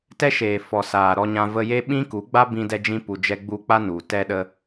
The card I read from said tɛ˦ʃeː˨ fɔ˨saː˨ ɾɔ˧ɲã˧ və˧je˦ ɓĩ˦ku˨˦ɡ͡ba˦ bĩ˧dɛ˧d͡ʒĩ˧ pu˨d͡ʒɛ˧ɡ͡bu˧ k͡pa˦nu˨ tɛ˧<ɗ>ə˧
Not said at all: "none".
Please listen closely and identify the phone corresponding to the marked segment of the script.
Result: ɗ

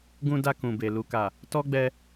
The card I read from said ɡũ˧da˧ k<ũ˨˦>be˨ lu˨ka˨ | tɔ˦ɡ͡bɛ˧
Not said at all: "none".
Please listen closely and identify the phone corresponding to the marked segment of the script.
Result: ũ˨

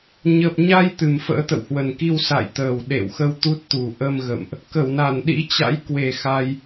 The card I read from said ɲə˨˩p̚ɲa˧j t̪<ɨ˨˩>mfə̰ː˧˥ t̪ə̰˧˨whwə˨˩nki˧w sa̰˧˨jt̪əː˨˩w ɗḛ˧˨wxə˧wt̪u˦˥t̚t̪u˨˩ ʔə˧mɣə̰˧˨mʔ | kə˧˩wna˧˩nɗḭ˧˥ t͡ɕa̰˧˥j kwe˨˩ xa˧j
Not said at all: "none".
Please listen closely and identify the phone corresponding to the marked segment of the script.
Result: ɨ˨˩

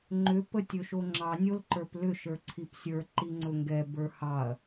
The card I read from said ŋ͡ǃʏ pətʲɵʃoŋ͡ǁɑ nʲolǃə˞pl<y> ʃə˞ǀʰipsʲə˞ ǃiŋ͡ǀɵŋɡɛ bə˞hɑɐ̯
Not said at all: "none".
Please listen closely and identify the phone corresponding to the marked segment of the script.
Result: ʏ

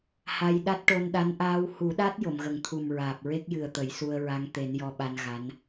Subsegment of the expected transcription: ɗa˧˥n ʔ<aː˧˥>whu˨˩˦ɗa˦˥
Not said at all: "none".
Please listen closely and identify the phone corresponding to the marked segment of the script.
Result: aː˧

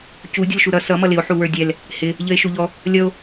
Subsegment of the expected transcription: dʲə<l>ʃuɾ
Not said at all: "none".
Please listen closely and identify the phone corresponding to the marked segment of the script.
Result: l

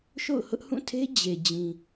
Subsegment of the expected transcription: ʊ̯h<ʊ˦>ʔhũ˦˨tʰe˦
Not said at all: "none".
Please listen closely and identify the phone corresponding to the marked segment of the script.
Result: ʊ˦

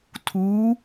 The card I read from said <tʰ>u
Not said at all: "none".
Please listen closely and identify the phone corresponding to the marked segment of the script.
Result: tʰ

